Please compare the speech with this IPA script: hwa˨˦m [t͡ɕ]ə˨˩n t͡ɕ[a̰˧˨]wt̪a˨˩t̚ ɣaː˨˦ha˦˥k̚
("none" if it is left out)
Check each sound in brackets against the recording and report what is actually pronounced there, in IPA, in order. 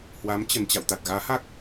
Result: t͡ɕ, a̰˧˨

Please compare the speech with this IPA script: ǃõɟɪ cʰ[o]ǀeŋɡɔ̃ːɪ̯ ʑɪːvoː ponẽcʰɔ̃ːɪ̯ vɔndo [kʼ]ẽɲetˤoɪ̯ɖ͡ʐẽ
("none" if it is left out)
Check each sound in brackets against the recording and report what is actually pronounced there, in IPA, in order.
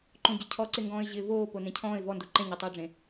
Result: ɔ, ǃ

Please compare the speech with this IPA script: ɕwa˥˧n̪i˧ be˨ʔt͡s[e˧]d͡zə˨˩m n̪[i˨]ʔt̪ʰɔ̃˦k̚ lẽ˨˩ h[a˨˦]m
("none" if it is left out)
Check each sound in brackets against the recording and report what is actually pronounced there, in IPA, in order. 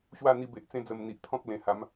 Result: ẽ˧, i˨, a˨˦

